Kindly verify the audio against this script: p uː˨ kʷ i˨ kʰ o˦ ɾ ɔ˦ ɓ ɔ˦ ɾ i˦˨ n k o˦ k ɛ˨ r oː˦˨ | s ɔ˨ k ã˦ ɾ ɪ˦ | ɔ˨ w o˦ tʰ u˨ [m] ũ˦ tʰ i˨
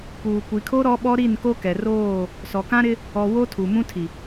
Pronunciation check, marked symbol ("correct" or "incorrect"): correct